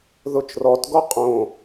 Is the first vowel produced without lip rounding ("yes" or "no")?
no